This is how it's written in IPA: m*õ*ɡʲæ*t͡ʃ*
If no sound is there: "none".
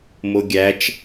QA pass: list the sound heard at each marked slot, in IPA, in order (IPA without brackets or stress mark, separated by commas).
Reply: o, t͡ʃ